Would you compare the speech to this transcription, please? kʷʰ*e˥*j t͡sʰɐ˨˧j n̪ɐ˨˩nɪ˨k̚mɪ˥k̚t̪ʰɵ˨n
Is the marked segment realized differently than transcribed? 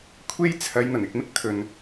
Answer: yes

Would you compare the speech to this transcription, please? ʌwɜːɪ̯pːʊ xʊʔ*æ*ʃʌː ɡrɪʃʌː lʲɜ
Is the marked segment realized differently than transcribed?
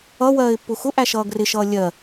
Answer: no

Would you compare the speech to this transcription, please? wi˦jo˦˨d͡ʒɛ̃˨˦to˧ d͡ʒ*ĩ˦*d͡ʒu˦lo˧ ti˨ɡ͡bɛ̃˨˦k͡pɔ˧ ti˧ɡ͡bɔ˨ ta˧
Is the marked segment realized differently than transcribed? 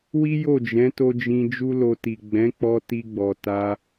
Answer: yes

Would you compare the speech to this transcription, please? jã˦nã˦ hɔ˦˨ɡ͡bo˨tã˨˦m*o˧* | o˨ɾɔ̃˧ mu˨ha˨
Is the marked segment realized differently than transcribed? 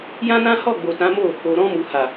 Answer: yes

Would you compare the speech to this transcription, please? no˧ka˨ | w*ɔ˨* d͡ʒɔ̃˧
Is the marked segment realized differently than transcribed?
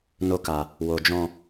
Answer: yes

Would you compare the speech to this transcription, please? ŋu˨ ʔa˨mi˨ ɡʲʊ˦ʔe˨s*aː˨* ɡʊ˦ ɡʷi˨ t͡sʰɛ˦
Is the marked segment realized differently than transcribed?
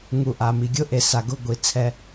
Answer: yes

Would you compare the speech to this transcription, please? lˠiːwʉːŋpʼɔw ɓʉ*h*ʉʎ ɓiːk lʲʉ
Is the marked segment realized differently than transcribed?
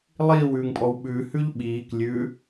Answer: no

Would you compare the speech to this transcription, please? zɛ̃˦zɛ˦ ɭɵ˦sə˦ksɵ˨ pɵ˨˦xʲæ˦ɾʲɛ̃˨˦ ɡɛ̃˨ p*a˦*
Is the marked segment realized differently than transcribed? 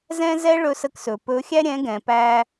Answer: yes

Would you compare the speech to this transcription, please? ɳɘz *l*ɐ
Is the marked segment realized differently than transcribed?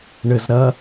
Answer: yes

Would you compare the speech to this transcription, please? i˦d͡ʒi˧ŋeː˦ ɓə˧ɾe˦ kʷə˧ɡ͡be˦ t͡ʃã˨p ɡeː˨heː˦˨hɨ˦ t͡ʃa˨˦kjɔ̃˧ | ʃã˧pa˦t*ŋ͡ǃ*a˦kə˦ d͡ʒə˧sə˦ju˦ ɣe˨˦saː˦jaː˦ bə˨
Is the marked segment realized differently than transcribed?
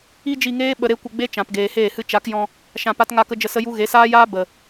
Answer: yes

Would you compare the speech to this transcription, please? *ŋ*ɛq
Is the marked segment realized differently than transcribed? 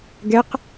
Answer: yes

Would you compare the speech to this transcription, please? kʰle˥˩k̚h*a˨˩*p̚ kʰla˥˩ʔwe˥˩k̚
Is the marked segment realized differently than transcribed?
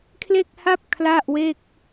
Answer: yes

